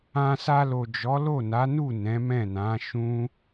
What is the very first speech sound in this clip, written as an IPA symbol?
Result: ã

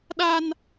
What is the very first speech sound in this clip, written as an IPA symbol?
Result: ɗ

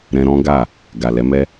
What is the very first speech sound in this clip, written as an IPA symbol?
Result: ɾ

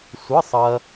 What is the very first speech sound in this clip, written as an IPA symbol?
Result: sʷ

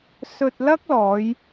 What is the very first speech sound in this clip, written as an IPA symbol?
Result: s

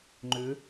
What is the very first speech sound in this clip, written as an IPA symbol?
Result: ŋ͡ǃ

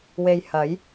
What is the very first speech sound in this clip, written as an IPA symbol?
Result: w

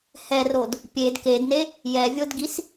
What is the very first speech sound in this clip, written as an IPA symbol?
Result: h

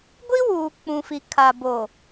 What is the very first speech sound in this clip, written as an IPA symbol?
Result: ɡʷ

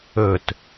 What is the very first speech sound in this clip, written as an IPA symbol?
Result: ɵ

